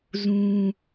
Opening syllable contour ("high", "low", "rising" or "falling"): high